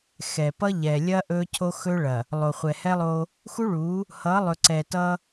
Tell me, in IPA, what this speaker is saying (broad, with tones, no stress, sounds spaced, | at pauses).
x ɛ˨ p ʌ˦ ʎ ɛ˨ lʲ ɐ˦ ʔ ɵ˦ cʰ o˦ x ɵ˦ ɭ ɐ˨ | lˠ o˨ χʷ ɛ˨ h ɛ˦ lˠ o˦ | x u˦ ɭ u˨˦ | h ʌ˨˦ lˠ ɵ˨ ǀ ɛ˨ t ʌ˦